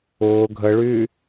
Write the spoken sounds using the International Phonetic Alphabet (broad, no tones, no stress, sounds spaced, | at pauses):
ʊː ɡʱ ə ɭ y